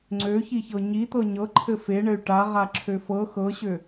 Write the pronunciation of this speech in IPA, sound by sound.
ŋ͡ǀ ø ç i ç ɤ ɲ i t̪ ɤ ɲ ɤ ǃʰ ɘ f e ɳ ɘ y̯ ʈ a ʁ a ǁʰ ø f ɤ x ɤ ɕ ø

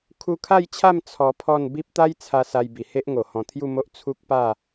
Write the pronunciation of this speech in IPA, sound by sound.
kʰ u˧ kʰ a˥˧ j t͡ɕʰ a˥˧ m t͡sʰ ɔ˧ pʰ ɔ˥˧ n b i˦ p̚ t̪ a˦ j t͡sʰ a˧ s a˧ j b i˨˩ h e˦ ʔ ŋ o˨˩ h ɔ̃˨˩ t̪ʰ j u˥˧ m o˦ ʔ t͡sʰ u˦ k̚ p a˥˧

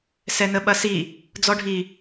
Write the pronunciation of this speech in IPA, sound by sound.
s ɛ n ə ɓ ɐ s i | d͡z ɔ ɖʱ i

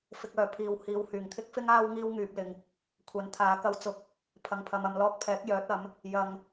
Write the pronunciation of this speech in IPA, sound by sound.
f ɪ˨ k̚ œː˨˩ pʰ iː˨ w h iː˨ w h yː˨˩ ŋ t̪ʰ ɪ˥ k̚ f ɪ˥ ŋ aː˥ w ŋ iː˥ w ŋ yː˧ p̚ l ɪ˧ ŋ | kʷʰ ɐ˨˥ n t̪ʰ aː˨˧ k ɐ˨˧ w t͡s ʊ˨ k̚ | pʰ ɐ˨ ŋ pʰ ɐ˨ m ɐ˨ m l ɔː˧ k̚ pʰ ɛː˨˥ k̚ j œː˨˥ t̚ ɐ˨˥ m | j ɐ˨ ŋ

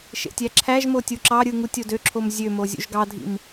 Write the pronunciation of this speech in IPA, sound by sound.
ʃ ḛ tʲ æ ǁʰ æ ʒ m o tʲ u ǁ ɑ ɾʲ ɯ ŋ u tʲ o d ø ǁʰ o m zʲ ø m o zʲ ṵ ʒ ɡ ɑ dʱ ḭ m

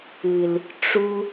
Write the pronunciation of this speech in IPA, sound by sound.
ɨ˨ l | ʈ͡ʂ u˧

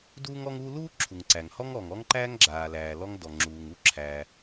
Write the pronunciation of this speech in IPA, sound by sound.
d uː˥ ŋ ɔ˥ ŋ u˥ l uː˥ ǁʰ u˩ ŋ ǀ æ˩ ŋ h ɔ˥ ŋ ɔ˩ ŋ ɔ˥ ŋ ǃ æː˥ ŋ ɡ͡ǁ aː˩ l æː˩ l ɔ˥ ŋ d ɔ˩ ŋ͡ǁ uː˩ ŋ u˥ ǁʰ æ˩

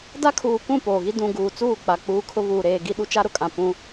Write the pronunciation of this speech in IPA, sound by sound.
d a˦ kʰ uː˨ kʷ ũ˦˨ p oː˨ ɣ i˦ d ũ˨ ɡ uː˨ t͡s uː˦˨ k͡p a˨ k͡p uː˦ kʰ ʊ˦ β uː˨ ɾ eː˨ ɡ i˦ ɗ u˦ t͡ʃ a˦ ɾ ʊ˨ kʼ ã˨ p ũ˦

